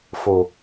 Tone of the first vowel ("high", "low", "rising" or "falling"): low